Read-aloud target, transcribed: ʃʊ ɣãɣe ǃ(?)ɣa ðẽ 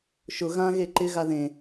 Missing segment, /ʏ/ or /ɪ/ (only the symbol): ɪ